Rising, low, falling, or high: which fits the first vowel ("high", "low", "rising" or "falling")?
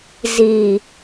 low